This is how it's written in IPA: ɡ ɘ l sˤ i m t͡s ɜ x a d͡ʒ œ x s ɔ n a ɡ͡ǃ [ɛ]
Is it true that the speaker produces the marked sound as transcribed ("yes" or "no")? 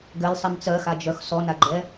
yes